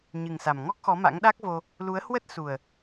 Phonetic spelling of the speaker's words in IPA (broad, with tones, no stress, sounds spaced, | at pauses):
ɲ ɨ˨˩ ŋ s a˨˩ m ŋ ɔ˦˥ k̚ x ɔ˨˦ m a̰˧˥ ŋ ɗ a˦˥ k̚ v o˧ | l u˨˦ ə̯ h w ə˦˥ t̚ s u˨˩ ə̯